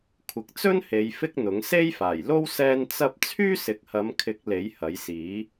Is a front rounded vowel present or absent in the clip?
present